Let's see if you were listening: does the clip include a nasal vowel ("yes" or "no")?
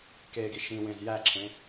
yes